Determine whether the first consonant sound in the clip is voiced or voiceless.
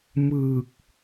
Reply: voiced